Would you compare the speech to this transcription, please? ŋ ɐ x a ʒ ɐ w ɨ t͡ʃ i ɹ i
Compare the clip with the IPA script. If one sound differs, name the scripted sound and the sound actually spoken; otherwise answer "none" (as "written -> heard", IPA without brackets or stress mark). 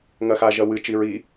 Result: none